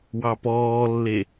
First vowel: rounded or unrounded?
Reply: unrounded